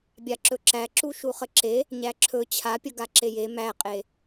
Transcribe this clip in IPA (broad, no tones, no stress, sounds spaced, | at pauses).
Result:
bʲ a ǁ ɵ ǁ æ ǁ u ʃ u χ ə ǁ e | ɲ æ ǁʰ ɵ t͡ɕʰ a pʲ ə ɡ a ǁ e j e m æ qʼ e